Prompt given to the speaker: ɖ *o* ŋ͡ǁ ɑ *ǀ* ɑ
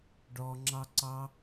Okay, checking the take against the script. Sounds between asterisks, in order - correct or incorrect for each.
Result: incorrect: ɔ, correct

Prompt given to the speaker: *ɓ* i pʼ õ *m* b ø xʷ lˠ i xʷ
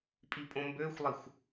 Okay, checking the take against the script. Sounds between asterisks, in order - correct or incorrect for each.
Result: incorrect: pʼ, correct

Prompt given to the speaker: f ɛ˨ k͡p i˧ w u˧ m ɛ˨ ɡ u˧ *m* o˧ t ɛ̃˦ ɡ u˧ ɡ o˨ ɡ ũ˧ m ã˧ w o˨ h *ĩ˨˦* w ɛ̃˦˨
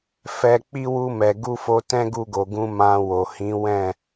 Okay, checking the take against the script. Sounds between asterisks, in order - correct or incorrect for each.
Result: incorrect: f, correct

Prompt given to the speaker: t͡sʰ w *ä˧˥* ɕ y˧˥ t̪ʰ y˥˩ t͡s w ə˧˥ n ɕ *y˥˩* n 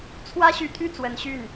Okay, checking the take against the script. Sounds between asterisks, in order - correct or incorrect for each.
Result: incorrect: ä˥, correct

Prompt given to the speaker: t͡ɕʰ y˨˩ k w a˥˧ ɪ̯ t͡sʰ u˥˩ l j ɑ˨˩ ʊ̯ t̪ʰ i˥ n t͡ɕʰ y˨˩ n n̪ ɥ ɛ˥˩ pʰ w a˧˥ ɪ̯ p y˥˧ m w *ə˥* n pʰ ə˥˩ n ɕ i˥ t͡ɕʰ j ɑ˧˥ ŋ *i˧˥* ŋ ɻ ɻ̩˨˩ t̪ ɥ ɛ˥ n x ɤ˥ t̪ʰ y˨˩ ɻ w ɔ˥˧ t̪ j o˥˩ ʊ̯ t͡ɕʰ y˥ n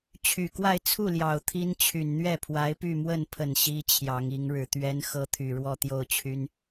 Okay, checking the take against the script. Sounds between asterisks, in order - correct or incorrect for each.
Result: incorrect: ə˥˧, correct

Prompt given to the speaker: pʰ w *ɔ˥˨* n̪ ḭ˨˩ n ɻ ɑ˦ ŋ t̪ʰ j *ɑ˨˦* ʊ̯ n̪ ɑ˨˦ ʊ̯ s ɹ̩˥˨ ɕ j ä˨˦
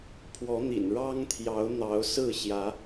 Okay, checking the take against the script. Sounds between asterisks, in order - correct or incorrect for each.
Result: incorrect: ɔ˨˦, correct

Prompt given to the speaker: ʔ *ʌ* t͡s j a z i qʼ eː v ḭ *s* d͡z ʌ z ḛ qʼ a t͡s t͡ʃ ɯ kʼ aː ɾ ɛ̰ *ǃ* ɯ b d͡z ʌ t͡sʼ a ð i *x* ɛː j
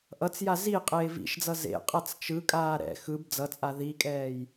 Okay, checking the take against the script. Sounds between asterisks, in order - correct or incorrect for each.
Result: correct, incorrect: ʃ, incorrect: x, incorrect: kʼ

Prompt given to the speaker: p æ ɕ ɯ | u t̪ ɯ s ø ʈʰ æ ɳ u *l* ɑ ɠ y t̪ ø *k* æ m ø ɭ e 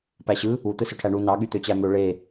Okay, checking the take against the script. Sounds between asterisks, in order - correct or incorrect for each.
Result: incorrect: n, incorrect: t͡ɕ

